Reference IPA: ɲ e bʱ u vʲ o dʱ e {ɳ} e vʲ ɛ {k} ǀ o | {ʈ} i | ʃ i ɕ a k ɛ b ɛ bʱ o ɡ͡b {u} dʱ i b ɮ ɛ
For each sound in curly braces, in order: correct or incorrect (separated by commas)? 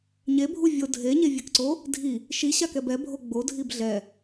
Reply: incorrect, correct, incorrect, incorrect